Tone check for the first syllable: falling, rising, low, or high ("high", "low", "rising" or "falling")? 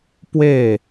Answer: falling